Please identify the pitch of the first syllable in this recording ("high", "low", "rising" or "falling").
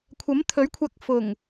rising